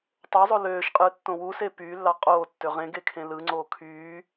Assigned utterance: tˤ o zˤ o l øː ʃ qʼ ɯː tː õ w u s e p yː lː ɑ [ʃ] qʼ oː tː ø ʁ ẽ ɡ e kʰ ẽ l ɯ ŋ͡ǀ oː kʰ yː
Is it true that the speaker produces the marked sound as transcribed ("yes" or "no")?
no